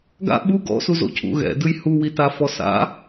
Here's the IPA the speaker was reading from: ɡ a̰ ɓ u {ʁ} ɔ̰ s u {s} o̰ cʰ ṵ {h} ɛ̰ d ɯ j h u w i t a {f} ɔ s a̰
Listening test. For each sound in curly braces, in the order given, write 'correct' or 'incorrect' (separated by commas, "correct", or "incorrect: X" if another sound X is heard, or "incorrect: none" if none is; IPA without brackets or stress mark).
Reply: incorrect: ɡ, incorrect: z, incorrect: ɣ, correct